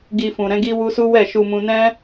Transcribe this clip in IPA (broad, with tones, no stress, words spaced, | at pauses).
ɡi˧fũ˨ɾɛ̃˨˦ ɡi˦wu˦ su˦wɛ˦˨ ʃu˧mũ˧ nɛ̃˦